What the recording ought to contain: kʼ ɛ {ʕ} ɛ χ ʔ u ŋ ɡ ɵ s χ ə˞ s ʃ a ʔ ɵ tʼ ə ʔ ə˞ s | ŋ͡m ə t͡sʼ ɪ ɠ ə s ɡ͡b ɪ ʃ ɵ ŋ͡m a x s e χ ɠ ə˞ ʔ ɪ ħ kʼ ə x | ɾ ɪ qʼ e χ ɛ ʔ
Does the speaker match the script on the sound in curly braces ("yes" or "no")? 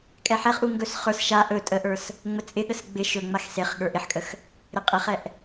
no